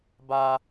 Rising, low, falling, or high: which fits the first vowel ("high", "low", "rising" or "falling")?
high